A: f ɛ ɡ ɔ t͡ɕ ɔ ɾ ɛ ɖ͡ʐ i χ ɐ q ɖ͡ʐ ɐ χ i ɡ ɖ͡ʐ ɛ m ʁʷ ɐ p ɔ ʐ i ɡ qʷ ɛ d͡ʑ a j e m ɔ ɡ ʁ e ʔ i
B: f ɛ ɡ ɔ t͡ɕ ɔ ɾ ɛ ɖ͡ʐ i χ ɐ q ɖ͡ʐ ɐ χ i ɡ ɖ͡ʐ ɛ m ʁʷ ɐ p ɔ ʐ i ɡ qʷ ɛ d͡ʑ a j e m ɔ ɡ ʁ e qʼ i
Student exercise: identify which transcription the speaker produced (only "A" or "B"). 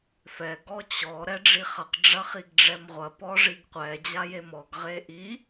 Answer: A